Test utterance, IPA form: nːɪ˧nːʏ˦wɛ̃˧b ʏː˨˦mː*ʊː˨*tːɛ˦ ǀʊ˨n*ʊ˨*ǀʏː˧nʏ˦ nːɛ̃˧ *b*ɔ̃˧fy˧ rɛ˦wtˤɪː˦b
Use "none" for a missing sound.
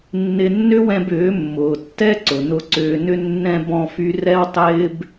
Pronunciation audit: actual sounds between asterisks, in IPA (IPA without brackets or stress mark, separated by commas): ʊː˨, ʊ˧, b